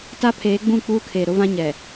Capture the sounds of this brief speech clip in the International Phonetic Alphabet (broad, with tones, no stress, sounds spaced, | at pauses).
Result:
t a˦ pʰ eː˨˦ ɡ͡b ũ˦˨ k͡p uː˦ kʰ eː˨ ɾ ʊ˦ v ã˦ ɲ ɛ˨